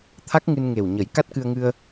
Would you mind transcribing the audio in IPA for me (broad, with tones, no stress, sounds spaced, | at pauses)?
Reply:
t̪ʰ a˦˥ k̚ ŋ ɨ˧ n ŋ e˨˩ w ɲ ə˨˩˦ j k a˦˥ t̚ k ɨ˧ ə̯ ŋ ɨ˧ ə̯